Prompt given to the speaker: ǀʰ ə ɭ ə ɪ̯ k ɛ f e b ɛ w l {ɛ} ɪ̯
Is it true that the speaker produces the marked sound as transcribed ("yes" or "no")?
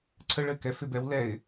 yes